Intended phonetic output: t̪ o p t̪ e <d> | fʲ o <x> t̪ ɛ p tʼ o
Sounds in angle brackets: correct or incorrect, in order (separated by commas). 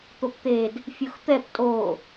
correct, correct